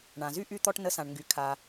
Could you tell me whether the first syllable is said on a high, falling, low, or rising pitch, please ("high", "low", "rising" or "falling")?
low